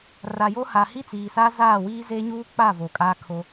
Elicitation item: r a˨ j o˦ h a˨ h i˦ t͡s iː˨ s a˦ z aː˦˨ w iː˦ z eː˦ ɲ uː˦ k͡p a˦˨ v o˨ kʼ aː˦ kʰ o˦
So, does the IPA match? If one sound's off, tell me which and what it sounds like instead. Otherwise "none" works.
none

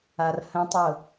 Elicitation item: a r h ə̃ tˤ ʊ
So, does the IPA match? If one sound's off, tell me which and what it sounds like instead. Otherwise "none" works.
none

